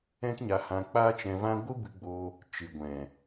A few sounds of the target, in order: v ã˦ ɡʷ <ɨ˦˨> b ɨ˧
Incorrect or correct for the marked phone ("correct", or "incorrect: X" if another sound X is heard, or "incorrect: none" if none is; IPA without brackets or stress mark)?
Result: incorrect: ɨ˦